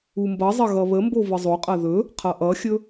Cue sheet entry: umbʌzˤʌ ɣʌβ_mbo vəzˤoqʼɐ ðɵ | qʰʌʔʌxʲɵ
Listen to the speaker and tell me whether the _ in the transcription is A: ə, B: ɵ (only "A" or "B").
A